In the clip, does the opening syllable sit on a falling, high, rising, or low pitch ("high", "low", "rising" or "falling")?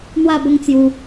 falling